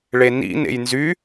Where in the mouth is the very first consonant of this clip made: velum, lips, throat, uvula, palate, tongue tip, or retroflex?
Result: retroflex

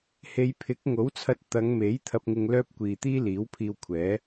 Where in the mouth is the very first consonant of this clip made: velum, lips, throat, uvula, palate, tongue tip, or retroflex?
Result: throat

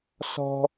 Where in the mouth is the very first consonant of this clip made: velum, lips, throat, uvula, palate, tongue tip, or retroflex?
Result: tongue tip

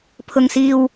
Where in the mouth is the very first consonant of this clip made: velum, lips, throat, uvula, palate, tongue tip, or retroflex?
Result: lips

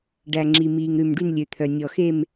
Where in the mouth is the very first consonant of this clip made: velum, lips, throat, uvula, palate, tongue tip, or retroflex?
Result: retroflex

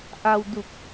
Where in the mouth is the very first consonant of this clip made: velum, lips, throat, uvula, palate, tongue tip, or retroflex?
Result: throat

